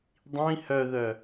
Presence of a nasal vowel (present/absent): present